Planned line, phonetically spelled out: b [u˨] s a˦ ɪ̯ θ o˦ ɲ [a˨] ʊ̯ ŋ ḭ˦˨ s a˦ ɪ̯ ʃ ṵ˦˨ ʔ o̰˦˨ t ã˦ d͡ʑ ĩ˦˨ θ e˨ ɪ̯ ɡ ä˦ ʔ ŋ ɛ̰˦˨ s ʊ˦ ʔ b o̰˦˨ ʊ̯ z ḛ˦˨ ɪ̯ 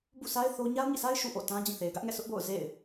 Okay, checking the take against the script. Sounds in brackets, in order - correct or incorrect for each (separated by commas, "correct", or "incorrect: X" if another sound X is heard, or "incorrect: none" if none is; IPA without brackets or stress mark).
incorrect: ṵ˦˨, incorrect: a˦